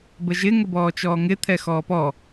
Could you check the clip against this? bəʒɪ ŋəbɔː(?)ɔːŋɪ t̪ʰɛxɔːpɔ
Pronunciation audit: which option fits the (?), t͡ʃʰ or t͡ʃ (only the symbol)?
t͡ʃ